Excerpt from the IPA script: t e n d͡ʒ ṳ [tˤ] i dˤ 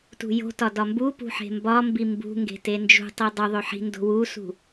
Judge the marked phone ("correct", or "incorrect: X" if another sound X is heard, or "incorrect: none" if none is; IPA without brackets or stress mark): correct